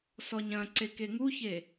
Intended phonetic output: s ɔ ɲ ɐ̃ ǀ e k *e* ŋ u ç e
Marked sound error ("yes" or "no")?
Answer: no